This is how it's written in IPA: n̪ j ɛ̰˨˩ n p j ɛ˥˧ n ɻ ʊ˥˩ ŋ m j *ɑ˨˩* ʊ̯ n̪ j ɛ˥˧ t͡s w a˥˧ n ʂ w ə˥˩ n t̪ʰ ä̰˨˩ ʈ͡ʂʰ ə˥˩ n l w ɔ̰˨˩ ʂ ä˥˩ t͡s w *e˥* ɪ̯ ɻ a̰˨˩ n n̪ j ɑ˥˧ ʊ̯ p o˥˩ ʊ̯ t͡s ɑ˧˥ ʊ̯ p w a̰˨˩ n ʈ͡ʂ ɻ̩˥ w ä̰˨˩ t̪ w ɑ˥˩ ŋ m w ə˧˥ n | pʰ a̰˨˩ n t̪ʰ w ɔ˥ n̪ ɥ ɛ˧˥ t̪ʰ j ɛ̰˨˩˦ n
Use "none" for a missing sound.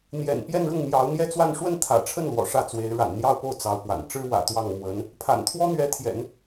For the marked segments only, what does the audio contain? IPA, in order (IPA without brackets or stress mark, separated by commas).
ɑ˧˥, e˧˥